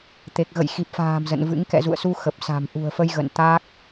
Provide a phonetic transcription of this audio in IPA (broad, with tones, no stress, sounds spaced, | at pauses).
t̪ e˨˩ k̚ ɣ ə̰˧˨ j x i˨˩ p̚ f a̤ː˨˩ m z ə̰˧˨ n v ɨ̰˧˥ ŋ k ɛ̰˧˨ z ṵ˧˨ ə̯ s u˧ x ə˨˩ p̚ s a̤˨˩ m ʔ ṳ˨˩ ə̯ f ə˧ j ɣ ə̰˧˨ n t̪ aː˦˥ k̚